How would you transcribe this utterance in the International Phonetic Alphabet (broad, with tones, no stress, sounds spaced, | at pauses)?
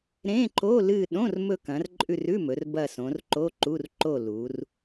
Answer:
ɾ ẽ˧˥˧ ǃ o˧˥˧ l ɨ˦˨ ɗ õ˧˥˧ r m ɵ˦˨ k ɐ̃˩˧ r ǃʼ ʉ˦˨ r ʉ˧˥˧ m ɵ˩˧ r b ɐ˦˨ s õ˩˧ r ǃ o˧˥˧ ǃ u˧˥˧ r ǃ o˦˨ l u˩˧ r